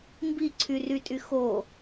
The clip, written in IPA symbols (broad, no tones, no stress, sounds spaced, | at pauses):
m b i ǀʰ y r y tʼ y x o